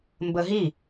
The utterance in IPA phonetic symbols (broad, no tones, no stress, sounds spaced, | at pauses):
m b ə ɦ i